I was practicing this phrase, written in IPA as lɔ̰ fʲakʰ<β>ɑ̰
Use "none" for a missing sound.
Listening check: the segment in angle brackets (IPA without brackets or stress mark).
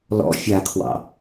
w